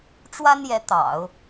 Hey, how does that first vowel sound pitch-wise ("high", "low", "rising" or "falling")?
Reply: high